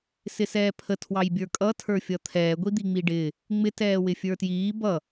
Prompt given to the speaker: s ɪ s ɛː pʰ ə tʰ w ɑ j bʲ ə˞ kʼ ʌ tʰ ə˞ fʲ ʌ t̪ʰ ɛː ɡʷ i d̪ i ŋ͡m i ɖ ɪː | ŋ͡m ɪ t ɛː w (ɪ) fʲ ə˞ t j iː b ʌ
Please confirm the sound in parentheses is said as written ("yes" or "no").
yes